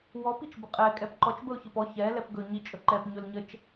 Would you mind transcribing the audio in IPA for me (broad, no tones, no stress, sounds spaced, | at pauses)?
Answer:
w ɔ p i t͡ʃ b ə qʼ ɛ kʼ ɛ p ǃ ɔ t͡ʃ b ə ʊ̯ ç ə p ɔ ç ɛ l ɛ p ɡ ɵ ɲ i t͡ʃʼ ɵ ǃ ɛ p ɲ ɵ l ɲ ə t͡ʃ